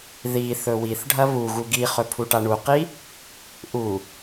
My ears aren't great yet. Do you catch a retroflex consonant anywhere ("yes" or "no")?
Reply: yes